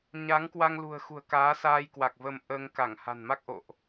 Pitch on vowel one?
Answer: rising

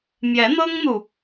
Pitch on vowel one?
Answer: rising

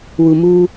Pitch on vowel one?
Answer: low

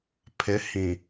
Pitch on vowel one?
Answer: rising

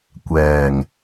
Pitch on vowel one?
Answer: low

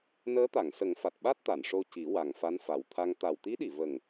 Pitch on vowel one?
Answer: rising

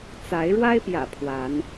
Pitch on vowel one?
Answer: rising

